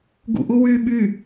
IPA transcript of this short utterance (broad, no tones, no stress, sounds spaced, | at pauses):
ɡ ṵ ʔ u w yː ɓ y